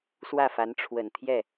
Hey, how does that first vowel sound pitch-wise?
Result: falling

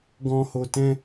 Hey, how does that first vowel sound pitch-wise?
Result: low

